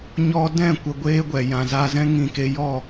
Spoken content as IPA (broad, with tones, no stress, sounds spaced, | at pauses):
ɲ ɔ˧ d ɛ̃˦˨ kʷ ə˨ ɡʷ eː˧ ɡʷ ɛ˨ j ã˨ z a˧ z ɛ̃˦ ŋ ĩ˧ k e˧ j ɔ˦˨